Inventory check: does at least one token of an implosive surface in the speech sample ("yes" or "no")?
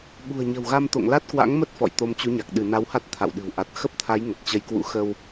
yes